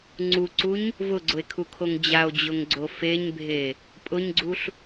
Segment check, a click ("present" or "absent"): present